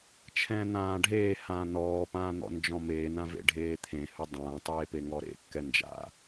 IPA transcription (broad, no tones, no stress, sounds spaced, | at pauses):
t͡ʃʰ ɛ̃ː n̪ ãː ɖʱ eː h ãː n ɔː p ãː n̪ ɔ̰ n d͡ʒ ɔ̃ m eː n ã v ḛ ɖʱ eː t̪ʰ ẽ h ɵ dˤ ãː tˤ eː p e ŋ ɔ ɾ ḛ kː ɛ n d͡ʒ a̰